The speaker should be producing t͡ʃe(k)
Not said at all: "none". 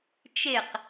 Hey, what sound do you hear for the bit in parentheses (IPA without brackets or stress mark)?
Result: q